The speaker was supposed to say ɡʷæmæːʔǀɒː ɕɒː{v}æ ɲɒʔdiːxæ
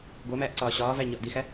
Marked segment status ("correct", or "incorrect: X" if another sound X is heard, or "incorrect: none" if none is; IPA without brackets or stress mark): correct